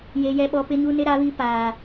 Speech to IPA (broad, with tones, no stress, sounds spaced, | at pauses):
j e˦ j ɛ˦ ɓ ɔ˦ p ɪ˦ ɲ u˦ n ɪ˦ ɾ a˦ β i˦ p aː˦